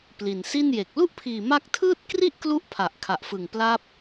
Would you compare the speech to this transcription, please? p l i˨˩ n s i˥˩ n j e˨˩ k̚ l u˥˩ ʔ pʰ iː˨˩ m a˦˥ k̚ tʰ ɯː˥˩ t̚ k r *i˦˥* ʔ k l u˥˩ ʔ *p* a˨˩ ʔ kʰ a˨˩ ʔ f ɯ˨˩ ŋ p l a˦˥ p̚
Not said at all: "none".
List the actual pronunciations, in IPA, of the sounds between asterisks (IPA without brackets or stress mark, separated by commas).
i˥˩, pʰ